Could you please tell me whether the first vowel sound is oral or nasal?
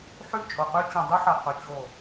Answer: oral